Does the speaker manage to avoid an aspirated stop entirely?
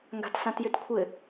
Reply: no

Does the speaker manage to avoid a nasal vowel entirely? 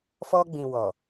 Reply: no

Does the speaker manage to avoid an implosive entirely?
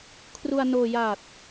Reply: yes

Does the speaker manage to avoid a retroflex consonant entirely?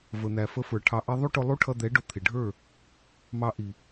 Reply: no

